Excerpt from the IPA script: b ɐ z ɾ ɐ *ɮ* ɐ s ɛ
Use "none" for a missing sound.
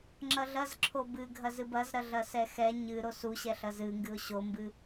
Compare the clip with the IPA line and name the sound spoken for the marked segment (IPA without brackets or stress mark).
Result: ɮ